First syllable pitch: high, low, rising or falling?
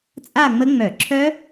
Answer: falling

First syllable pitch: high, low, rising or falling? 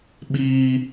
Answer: high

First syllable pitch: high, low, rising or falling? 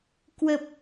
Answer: low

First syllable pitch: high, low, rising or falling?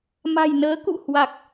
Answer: low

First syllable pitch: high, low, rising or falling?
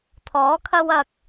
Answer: rising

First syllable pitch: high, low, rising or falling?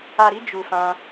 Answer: low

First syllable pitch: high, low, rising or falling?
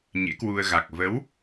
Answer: rising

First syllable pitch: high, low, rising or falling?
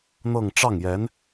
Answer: falling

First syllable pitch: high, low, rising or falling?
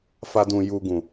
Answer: high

